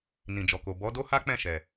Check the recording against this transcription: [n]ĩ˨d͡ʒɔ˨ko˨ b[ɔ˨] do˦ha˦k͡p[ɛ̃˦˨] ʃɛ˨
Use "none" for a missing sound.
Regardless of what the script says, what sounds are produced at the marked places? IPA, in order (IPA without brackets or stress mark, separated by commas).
n, ɔ˨˦, ɛ̃˦˨